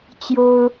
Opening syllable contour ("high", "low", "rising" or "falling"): high